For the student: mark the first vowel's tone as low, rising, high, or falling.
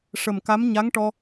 low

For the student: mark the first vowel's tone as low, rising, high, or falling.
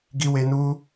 high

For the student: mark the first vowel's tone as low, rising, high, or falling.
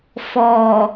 low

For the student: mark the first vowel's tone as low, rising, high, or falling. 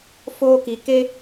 high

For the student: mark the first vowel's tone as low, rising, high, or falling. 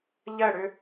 falling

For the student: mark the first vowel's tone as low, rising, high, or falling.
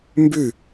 falling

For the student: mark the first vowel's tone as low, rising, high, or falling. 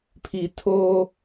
low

